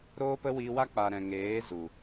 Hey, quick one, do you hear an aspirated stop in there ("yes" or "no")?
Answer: no